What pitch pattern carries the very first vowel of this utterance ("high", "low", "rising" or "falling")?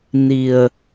low